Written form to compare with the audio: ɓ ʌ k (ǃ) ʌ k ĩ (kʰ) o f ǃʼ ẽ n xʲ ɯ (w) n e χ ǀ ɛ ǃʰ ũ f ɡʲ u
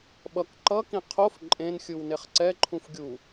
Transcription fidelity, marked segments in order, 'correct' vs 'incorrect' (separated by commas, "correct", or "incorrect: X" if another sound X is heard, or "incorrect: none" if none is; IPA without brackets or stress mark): correct, incorrect: qʰ, correct